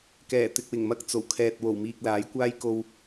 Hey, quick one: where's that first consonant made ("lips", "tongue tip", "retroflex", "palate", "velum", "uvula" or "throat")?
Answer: velum